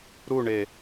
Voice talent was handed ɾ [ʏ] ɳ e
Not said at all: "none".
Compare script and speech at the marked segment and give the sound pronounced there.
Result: u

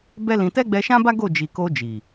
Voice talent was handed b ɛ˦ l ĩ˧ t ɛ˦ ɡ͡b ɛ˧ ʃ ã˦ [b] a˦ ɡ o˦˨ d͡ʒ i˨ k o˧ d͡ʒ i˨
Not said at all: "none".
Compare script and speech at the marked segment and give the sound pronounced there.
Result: b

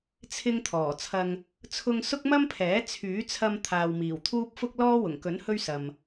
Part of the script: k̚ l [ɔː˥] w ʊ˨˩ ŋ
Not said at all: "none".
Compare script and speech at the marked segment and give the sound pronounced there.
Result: ɔː˥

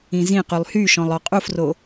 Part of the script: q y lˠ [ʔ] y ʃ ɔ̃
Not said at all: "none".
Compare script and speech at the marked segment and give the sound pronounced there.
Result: h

